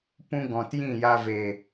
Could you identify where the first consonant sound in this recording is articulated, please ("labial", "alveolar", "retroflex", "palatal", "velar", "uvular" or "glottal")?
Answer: labial